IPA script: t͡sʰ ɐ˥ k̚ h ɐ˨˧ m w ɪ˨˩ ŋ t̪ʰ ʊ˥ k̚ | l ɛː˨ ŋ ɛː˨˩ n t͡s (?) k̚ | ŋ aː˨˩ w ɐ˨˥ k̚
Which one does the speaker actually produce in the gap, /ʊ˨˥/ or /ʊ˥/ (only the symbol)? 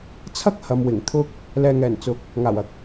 ʊ˨˥